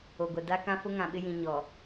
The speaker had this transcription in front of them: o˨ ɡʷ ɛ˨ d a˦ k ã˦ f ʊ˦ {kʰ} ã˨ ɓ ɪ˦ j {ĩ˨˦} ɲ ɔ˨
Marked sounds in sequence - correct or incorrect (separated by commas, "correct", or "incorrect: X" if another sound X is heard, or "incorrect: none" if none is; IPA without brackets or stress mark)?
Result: incorrect: ŋ, incorrect: ĩ˨